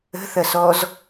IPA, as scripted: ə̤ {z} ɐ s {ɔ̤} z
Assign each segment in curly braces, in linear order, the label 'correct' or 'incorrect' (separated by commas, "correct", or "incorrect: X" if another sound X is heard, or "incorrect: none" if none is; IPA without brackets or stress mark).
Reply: incorrect: θ, incorrect: ɔ